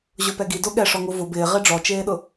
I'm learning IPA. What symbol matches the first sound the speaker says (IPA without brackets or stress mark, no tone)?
ʑ